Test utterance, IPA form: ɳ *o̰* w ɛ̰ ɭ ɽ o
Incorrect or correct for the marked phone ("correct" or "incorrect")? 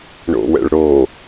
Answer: correct